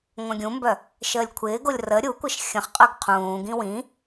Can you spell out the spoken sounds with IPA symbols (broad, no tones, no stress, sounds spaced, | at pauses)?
ŋʷ œ̃ ɡʲ ũ m b œ | ʃ əː lʲ kʷʰ ɪː ɡ o lʲ r ə ɾʲ u kʷ ə ʃ xʲ ə̃ χ qʼ œ ɡ qʰ ũː ɡ ĩ w ĩ